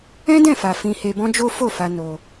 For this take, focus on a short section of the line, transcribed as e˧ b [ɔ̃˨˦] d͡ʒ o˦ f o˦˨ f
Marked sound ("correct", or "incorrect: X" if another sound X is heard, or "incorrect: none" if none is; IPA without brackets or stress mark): incorrect: ɔ̃˦